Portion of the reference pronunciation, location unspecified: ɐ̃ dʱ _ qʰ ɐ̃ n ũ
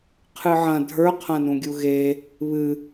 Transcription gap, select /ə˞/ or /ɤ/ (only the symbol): ə˞